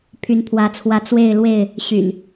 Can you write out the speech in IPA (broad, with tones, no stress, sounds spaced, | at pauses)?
pʰ y˨˦ n pʰ w ä˨˦ t͡sʰ w ä˨˦ t͡s w e˥˨ ɪ̯ l w e˥˨ ɪ̯ | ɕ y̰˨˩ n